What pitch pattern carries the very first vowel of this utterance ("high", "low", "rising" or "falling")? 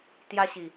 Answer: high